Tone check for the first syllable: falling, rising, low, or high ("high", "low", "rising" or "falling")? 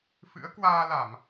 rising